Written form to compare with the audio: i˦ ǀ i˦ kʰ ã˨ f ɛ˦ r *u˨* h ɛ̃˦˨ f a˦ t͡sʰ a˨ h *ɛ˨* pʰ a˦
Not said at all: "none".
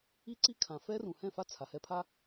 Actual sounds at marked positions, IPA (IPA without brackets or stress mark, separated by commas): ũ˨, ɛ˦